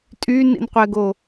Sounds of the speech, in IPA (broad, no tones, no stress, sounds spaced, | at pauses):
tʼ y n ḭ n qʷ ɛ ɡ o